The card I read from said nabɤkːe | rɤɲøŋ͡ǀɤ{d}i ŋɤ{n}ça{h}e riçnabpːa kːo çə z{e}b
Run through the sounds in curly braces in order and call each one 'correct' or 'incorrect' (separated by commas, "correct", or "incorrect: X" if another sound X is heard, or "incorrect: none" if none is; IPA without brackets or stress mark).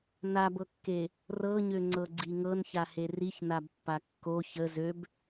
incorrect: ɡ͡ǀ, correct, correct, incorrect: ø